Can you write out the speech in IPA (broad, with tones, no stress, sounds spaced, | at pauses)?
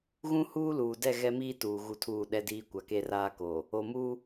ɣ ũ˦ h uː˦ l uː˨ d ɛ˦˨ ɣ ɛ˦ m iː˦ t uː˨ ɣ u˦ tʰ uː˦˨ ɗ ɛ˦ d iː˦ kʷ a˨ k e˦ r aː˦ k oː˨ | o˨ m uː˦